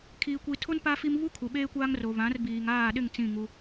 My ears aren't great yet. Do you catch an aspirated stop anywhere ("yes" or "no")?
yes